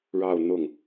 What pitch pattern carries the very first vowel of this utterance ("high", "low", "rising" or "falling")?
falling